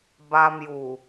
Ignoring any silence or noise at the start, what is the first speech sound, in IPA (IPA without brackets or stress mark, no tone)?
b